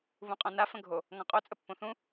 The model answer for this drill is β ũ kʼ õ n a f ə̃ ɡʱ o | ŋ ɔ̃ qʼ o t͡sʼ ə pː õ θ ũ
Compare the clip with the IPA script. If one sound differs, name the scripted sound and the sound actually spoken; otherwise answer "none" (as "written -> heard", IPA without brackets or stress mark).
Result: kʼ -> qʼ